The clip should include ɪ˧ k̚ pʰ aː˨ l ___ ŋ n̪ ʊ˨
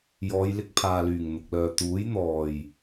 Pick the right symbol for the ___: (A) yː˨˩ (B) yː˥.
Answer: A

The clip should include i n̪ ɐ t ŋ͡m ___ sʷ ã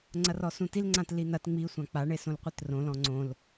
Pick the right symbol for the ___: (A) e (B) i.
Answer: B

